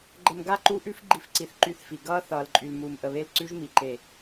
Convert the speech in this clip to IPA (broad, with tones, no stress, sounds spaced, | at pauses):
ɡ͡ǃ ə˨ m ɡ a˦˨ ǃ u˦ ʔ ʉ˦ f ɡ͡ǃ i˦ f ǀ i˨ θ ǃ y˦˨ θ f i˨ ɡ ʌː˦ θ ʌː˨ l ǃʼ y˨ l m uː˨ m ʔ ə˨ β e˦˨ l ǀ ʉ˦ ʒ m i˨ ǃ e˨